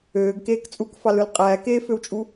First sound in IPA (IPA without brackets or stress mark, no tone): øː